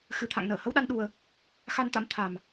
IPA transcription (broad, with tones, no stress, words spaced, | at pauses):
xɨ˨˩t̪ʰa̰˧˨ŋ nəː˧˩hə˧wɗa˧n ɗu˧ə̯ | xa˧nt̪a̰˧˥m t̪ʰa˨˩m